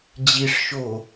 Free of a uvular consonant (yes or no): yes